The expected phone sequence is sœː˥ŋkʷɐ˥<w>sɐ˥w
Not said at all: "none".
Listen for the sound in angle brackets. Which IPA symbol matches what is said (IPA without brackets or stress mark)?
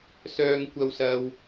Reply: w